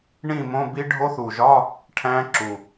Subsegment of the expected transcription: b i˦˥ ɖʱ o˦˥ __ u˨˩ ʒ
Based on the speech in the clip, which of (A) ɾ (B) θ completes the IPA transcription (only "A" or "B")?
B